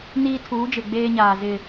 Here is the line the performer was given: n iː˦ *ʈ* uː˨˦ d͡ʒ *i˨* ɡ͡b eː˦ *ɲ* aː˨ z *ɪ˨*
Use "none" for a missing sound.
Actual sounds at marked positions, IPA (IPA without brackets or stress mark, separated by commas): tʰ, ɪ˨, ɲ, ɪ˨